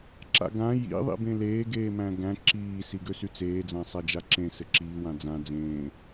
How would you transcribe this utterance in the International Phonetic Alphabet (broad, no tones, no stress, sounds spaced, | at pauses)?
ǁ a̰ ɡ ã j ḭ ðˤ ḭ b ẽ l eː ɡ eː m æ̃ ɡ æ̃ ǁ iː s i ɡ ø s y t͡s eː d͡z ã sˤ æ d͡ʒ a ǁ ẽ s ɘ ǁ iː w ã d͡z ã d͡z ẽː